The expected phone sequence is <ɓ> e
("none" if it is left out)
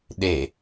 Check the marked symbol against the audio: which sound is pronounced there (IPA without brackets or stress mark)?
ɗ